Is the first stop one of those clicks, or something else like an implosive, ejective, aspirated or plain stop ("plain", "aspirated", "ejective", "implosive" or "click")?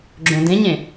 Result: click